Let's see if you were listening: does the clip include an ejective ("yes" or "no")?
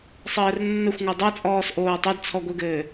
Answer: yes